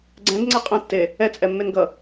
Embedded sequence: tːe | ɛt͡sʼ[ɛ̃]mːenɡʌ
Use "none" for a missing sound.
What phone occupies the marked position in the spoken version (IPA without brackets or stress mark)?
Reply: ɛ